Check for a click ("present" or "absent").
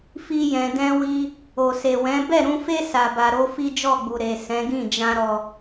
absent